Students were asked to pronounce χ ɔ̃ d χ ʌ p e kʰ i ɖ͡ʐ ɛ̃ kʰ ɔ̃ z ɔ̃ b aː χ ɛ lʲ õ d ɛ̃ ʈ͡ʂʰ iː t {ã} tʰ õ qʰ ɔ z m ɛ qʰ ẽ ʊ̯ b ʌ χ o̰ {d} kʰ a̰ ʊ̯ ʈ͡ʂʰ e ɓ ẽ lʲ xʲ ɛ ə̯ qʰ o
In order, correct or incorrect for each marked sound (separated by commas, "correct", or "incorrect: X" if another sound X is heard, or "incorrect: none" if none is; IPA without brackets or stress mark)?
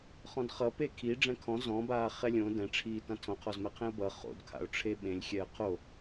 correct, correct